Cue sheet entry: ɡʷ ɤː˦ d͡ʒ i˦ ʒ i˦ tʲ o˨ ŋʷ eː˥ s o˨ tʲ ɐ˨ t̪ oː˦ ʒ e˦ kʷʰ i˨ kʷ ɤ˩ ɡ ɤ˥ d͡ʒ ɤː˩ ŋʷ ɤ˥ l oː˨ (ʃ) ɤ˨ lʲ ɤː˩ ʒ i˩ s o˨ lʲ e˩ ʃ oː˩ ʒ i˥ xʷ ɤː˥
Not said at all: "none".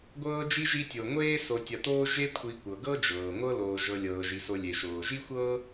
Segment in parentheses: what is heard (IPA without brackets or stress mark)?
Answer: ʒ